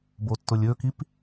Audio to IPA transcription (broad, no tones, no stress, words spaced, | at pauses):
botːʊlʲɵkip